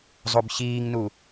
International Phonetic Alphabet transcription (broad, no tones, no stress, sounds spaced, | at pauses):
zˤ o b ç iː ŋ n u